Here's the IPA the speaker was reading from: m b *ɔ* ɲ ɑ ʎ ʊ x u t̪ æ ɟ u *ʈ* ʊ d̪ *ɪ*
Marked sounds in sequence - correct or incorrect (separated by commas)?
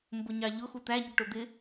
incorrect, correct, correct